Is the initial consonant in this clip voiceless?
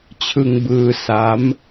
yes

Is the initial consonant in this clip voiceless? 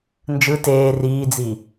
no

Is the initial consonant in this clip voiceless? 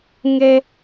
no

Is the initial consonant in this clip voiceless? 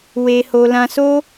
no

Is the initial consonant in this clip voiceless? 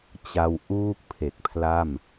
yes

